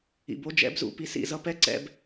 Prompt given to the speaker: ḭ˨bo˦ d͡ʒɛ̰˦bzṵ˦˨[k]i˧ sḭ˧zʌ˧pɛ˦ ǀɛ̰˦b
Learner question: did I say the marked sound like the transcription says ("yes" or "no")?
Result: no